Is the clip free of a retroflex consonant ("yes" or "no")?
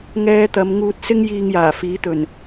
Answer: yes